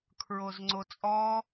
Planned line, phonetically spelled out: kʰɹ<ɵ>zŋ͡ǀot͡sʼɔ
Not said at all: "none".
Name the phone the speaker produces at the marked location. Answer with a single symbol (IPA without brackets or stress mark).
o